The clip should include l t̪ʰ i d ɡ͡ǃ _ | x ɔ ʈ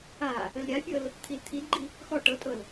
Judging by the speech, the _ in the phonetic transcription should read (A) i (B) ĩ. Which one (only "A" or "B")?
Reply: A